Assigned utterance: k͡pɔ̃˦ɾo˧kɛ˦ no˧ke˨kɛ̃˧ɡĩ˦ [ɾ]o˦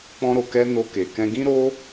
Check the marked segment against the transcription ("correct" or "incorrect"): correct